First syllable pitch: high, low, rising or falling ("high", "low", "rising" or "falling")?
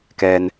low